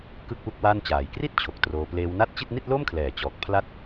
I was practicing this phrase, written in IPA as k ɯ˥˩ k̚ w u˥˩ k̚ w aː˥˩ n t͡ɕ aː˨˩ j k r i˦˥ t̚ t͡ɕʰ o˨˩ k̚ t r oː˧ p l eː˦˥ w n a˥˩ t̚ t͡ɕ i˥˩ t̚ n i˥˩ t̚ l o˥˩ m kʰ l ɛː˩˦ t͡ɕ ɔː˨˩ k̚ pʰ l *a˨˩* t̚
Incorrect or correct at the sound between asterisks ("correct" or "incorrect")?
incorrect